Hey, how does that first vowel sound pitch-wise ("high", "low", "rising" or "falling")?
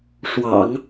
low